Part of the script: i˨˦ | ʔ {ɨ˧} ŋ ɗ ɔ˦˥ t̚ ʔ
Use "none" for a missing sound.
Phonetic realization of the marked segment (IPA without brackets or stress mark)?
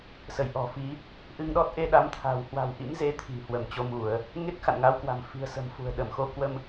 ɨ˧